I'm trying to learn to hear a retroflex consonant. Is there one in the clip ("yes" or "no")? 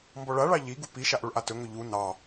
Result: yes